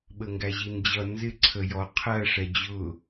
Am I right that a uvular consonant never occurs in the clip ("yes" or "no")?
no